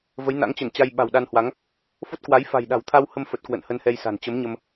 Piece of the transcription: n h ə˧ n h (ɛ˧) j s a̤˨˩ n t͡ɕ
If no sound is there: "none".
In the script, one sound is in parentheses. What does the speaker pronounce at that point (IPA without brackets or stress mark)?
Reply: ɛ˧